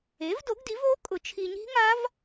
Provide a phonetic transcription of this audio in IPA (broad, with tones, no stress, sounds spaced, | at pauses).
e˩˥ v d o˩˥ ɡ d i˩˥ v oː˦˥ kʼ ʊ˨˩˦ t͡ʃʰ i˨ ɲ i̤˦˥ ŋ a˦˥ v